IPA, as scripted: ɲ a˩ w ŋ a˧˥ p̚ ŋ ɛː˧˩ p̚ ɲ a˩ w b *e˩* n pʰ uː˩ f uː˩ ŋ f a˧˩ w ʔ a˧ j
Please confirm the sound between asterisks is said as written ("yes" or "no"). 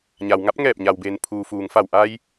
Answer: yes